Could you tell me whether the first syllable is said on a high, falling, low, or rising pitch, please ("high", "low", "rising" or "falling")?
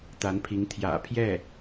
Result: rising